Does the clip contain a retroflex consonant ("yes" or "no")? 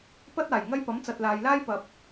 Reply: no